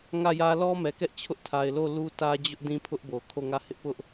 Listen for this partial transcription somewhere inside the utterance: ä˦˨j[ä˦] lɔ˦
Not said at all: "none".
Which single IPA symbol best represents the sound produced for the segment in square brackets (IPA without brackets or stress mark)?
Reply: ä˦